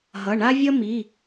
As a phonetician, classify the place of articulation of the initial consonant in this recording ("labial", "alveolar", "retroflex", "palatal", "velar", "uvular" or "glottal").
glottal